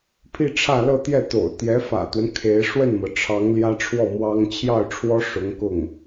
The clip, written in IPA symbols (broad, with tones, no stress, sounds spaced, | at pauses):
pʰ i˥˧ ʈ͡ʂʰ ä˥˧ l ɤ˥˧ t̪ j ɛ˥˩ t̪ o̰˨˩ ʊ̯ t̪ j ɛ˧˥ f ä̰˨˩ t̪ w ə˦ n kʰ e˧˥ ɪ̯ ʂ w ə˥˩ n m ɤ˩ ʈ͡ʂʰ ɑ˧˥ ŋ l j ä˥ ʈ͡ʂʰ w ɔ˥˩ m w ɑ˥ ŋ t͡ɕʰ j ɑ˥˩ ʊ̯ ʈ͡ʂʰ w ɔ˥ ʂ ʊ˧˥ ŋ k ʊ˥˩ ŋ